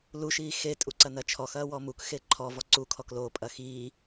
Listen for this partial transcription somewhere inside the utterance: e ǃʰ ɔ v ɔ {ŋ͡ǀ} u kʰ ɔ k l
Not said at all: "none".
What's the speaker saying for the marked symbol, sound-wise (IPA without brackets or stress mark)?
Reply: ǀ